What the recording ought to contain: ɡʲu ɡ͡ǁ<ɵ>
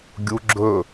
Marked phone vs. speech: correct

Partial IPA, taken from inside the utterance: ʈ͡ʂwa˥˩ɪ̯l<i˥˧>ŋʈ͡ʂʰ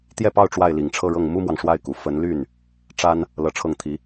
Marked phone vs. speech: incorrect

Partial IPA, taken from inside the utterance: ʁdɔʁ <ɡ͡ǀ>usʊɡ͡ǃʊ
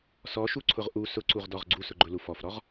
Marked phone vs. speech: correct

